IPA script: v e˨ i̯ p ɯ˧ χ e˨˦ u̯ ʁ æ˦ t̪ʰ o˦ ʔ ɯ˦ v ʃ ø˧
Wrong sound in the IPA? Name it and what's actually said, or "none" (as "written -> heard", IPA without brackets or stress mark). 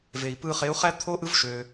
ʁ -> χ